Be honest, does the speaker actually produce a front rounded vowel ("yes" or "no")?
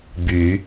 yes